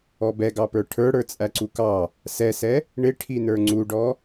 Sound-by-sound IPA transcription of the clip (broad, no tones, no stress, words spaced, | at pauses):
ɔbɛɡɑpə˞ ʈʰə˞ɽə˞ t͡sʼæǀukɑ | sɛsɛ | ɳɪʈʰinə˞ ŋ͡ǀuɖɔ